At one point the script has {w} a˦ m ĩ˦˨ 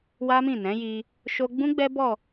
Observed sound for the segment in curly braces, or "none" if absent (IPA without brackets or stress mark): w